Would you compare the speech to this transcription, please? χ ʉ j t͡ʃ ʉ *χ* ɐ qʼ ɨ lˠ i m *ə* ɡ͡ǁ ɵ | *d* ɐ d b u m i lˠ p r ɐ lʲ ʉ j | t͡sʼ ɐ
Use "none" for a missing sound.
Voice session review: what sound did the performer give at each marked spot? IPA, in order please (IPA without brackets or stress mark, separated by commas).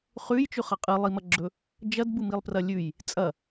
χ, ɐ, d͡ʒ